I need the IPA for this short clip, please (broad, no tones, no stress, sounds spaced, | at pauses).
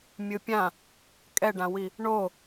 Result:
mʲ ɯ pʲ ã | kʼ ɛ ɖ ã w i | ɳ o